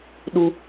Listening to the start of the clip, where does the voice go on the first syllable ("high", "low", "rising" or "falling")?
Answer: high